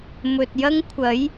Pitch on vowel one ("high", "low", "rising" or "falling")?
low